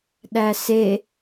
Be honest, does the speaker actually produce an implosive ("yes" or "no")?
yes